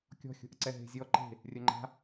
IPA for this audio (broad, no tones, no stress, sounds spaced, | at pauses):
kʲ ɔ̤ xʲ o̤ ʔ ə ǀ ɛ ɦ e̤ zʲ ɔ ǃ e̤ | rʲ œ ŋ͡ǃ a̤